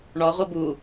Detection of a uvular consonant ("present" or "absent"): present